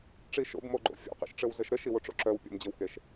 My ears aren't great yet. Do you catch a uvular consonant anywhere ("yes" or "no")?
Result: yes